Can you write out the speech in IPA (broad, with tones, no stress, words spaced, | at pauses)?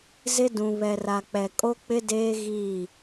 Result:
zɪ˦ dũ˨βɛ˨ra˨k͡pɛ˨ kʼo˦k͡pɪ˦deː˦ ɣiː˦˨